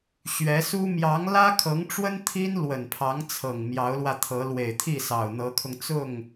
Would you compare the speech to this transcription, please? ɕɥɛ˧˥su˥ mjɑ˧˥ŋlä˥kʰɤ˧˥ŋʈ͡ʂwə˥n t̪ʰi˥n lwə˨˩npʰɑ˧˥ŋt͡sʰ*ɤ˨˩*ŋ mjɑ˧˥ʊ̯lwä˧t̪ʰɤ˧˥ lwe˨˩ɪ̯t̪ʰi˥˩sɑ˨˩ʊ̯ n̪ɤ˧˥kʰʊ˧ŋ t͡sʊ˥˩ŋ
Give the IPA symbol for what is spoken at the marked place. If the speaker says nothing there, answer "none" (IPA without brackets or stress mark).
ɤ˨˩